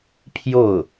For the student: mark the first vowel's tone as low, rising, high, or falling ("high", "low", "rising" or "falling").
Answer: falling